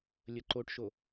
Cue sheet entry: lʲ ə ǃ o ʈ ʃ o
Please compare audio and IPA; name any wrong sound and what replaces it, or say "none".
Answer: none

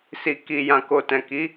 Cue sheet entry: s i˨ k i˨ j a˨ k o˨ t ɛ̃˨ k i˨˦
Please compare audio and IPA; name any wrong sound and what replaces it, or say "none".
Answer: a˨ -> ã˨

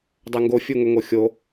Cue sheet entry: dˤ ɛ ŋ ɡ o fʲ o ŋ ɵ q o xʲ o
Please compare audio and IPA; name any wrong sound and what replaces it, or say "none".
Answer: q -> ŋ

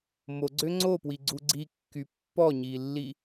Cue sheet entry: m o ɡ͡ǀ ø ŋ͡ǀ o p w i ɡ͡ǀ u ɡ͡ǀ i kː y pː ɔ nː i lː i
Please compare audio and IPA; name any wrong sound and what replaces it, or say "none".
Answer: nː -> ɲ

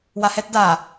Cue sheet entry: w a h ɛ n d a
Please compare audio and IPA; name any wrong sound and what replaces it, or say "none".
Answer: n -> t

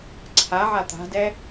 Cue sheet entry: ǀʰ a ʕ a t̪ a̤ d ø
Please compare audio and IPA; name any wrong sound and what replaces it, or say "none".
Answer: ø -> ɛ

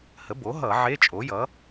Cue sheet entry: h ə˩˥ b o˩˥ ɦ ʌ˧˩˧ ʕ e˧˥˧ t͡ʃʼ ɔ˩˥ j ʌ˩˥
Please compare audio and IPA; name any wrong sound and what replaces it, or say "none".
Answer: ɔ˩˥ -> o˩˥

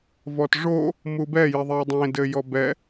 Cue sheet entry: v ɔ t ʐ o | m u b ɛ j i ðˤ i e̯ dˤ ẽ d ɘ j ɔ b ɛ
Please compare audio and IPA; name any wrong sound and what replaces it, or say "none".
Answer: none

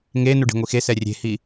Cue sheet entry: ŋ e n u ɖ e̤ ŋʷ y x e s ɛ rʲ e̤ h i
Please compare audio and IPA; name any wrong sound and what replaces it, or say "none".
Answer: y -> i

